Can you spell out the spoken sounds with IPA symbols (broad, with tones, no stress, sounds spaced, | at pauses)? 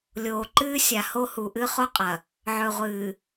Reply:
lʲ oː˨ ǃ ɨː˦ sʲ a˨ h o˦ h u˨ ʔ ɨ˦ χ o˦ qʼ ɐ˨ | ʕ ɵ˨ ʁʷ ɨː˨